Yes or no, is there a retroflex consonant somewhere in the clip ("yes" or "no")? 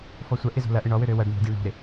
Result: yes